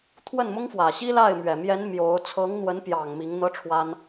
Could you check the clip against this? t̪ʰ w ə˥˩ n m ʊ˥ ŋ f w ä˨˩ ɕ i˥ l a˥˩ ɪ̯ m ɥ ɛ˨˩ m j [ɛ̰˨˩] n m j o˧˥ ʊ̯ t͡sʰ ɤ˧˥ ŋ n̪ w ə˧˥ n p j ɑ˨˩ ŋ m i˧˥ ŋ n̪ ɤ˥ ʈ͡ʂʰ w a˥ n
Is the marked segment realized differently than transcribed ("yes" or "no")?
yes